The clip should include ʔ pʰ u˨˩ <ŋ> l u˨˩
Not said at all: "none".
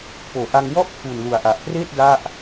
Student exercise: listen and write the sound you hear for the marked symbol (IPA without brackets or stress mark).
n